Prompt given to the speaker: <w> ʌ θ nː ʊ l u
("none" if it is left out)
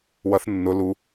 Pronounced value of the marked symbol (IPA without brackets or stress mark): w